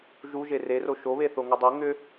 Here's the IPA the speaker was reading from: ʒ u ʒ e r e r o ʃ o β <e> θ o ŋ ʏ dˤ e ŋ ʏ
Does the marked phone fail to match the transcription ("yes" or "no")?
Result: no